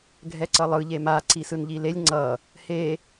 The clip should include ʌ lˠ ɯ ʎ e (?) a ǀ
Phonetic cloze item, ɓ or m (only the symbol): m